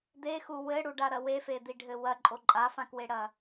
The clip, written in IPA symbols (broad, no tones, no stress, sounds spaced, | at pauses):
d̪ e x u w ɘ ɽ u ɖ a ɾ ɐ w e f e d̪ i ɖʱ ɘ w ɐ ǃʼ o ǃʼ a f ã k w e ɽ ɐ